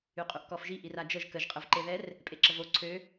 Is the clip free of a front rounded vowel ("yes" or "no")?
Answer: no